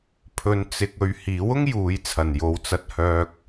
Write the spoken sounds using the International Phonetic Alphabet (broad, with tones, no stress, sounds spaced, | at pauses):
pʰ ɵ˧ n t͡s ɪ˧ k̚ ɵ˧ ɥ h iː˨˥ w ʊ˥ ŋ j uː˨˧ j t͡sʰ ɐ˨˩ n j o˨ w t͡s ɐ˧ t̚ h œː˧ k̚